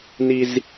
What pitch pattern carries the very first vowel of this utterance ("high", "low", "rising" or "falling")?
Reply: high